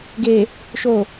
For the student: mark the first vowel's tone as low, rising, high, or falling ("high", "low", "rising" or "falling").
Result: low